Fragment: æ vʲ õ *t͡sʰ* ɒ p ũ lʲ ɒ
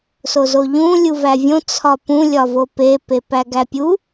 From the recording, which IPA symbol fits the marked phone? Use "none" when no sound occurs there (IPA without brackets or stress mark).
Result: t͡sʰ